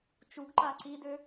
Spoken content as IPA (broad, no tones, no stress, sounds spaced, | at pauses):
t͡ʃ u ɡ ǃ a ǀ i d ø